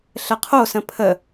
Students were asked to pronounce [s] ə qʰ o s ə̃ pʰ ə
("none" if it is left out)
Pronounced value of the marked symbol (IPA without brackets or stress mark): ɬ